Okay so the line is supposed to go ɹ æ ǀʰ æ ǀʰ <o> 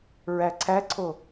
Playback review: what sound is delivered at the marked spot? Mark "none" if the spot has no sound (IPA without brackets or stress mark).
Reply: o